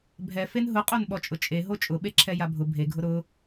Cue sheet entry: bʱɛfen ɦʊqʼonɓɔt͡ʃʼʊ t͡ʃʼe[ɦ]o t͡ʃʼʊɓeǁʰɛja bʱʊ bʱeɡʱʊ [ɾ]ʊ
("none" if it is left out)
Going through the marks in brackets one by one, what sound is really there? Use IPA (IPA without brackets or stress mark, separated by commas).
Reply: ɦ, ɾ